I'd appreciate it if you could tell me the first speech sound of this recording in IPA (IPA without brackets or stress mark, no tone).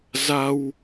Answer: z